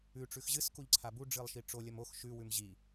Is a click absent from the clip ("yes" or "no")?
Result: no